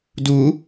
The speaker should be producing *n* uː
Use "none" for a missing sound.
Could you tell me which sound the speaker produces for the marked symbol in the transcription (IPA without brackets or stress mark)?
d